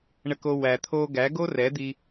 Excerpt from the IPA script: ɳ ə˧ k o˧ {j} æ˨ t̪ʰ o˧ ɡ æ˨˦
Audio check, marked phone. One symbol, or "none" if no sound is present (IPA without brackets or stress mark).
w